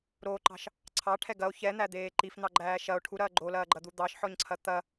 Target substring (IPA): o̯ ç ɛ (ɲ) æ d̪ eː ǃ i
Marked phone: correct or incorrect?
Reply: incorrect